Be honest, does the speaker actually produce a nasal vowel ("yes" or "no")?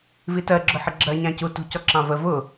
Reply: yes